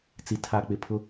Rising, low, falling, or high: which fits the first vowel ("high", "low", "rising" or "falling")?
low